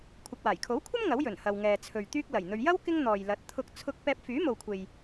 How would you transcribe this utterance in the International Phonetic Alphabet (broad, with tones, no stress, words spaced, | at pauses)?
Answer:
kʷʰɐ˨k̚waː˨˩jkʰo˨˥wkʷʰɐ˥m ŋɐ˨˥wjɵ˨˩n hɐ˨wŋɛː˨ t͡sʰɵ˨ɥ t̪yː˥k̚ lɐ˨˩jn̪ɵ˧ɥ jɐ˥w kɪ˥ŋn̪ɔː˨jlɐ˨˥t̚ t̪ʰʊ˧k̚ t͡sʰʊ˧k̚ pɛː˧p̚fyː˨˥mo˨wkʷʰe˨j